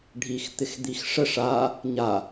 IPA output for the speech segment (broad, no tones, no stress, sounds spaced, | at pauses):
ɖʱ i x t̪ ɪ x d̪ i x ʂ ə ʂ a | ɲ a